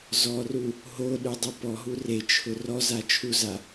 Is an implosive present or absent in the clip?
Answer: present